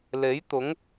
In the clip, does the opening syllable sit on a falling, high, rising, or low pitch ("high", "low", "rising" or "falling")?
rising